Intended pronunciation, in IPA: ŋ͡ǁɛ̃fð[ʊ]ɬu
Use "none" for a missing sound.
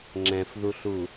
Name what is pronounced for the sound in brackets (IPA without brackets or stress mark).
u